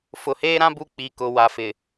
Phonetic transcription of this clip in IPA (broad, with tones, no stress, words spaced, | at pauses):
fʊ˨heː˦ɾã˦ bu˦˨k͡pi˨ kʊ˨wa˨ fɪ˨